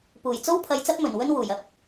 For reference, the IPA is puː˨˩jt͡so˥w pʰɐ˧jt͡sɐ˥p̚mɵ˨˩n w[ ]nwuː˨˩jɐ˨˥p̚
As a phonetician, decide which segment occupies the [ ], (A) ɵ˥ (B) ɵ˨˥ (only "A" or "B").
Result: A